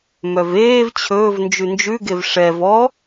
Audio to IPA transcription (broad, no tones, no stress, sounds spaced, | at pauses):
m œ v eː v t͡ɕʰ ɵː v n d͡ʒ ʉ n d͡ʒ ʉ ɡ e v ʂ ɛ v ɔ